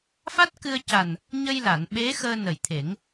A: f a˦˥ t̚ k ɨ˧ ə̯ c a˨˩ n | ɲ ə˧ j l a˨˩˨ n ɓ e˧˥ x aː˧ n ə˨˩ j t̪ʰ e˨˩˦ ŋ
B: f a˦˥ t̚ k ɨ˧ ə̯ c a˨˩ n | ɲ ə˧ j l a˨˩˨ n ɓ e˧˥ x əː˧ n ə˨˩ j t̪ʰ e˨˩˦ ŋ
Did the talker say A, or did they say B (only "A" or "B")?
B